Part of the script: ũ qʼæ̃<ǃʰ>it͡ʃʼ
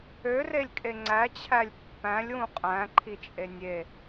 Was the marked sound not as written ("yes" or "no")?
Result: no